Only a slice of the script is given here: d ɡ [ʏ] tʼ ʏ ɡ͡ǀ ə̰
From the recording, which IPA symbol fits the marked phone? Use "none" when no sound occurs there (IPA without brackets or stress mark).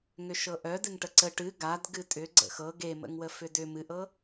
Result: ɨ